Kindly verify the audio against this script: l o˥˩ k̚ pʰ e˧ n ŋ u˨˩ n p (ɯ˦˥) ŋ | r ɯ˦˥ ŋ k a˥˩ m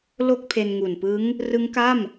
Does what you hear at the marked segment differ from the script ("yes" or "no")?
no